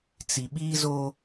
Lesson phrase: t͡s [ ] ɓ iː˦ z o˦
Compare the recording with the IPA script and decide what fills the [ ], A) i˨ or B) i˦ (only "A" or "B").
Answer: A